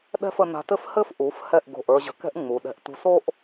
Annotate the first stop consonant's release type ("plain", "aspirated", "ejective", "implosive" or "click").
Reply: implosive